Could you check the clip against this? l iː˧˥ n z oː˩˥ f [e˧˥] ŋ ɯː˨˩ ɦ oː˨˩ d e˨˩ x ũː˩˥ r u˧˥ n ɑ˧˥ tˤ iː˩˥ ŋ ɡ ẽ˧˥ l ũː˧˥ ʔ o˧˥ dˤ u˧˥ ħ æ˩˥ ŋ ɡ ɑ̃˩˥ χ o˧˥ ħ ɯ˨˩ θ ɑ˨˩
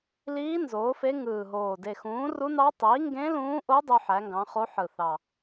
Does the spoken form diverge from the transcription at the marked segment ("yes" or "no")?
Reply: no